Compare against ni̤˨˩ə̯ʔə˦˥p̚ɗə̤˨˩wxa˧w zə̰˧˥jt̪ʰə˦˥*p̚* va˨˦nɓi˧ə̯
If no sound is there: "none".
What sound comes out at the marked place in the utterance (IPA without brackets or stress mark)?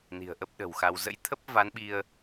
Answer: p̚